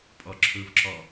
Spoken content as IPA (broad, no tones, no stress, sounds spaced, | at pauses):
pʼ ɒ ǁʰ ɵ v ǁ ɒ